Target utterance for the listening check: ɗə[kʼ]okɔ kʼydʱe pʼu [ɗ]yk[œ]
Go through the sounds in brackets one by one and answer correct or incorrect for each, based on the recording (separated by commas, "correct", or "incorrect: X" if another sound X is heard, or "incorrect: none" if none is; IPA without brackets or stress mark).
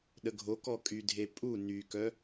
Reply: incorrect: ɡʱ, incorrect: n, correct